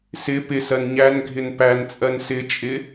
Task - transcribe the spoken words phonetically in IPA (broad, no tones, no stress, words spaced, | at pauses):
sɪ pɪsɜn ɲænɡʱɪn pænt͡sʼɜn sɪt͡ʃʼɪ